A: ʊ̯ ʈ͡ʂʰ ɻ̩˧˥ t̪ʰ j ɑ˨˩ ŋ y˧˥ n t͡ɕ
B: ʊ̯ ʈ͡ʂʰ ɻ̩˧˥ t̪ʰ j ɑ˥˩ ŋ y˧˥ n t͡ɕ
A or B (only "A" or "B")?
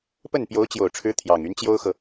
A